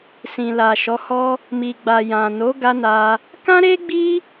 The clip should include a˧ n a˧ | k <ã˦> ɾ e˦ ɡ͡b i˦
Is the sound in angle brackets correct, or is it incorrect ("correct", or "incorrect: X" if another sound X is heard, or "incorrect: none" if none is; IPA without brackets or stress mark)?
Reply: correct